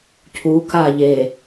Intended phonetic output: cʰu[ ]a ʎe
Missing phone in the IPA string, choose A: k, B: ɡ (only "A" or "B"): A